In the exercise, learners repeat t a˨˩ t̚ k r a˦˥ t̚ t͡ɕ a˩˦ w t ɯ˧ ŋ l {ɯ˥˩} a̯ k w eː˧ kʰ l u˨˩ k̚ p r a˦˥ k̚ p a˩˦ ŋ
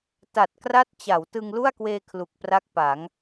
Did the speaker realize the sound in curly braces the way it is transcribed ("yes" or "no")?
no